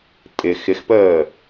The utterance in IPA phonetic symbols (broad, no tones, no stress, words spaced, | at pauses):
tʼɪ xɪxpəː